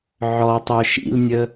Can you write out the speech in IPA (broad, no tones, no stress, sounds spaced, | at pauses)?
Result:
ʕ ɔ tˤ œ ʃ ḭ l nʲ ə